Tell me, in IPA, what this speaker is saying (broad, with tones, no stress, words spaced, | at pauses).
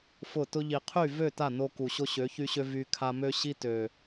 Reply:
fʊ˦˨ tʊ˧ʎi˨qʰy˦˨ vø˦˨ ta˦˨no˧ku˨ ɕo˧ɕø˨˦çy˧ɕø˧ vy˧kʰa˧mø˦ɕi˦ tø˨